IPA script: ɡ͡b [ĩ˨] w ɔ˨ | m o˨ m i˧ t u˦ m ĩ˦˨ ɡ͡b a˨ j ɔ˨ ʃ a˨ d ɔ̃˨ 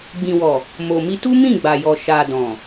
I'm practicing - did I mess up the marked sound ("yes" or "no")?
no